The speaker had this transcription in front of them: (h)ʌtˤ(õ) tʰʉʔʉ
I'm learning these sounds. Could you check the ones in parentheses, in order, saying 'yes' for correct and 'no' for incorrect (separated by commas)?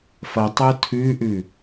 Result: no, no